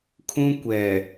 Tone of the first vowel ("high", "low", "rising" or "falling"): high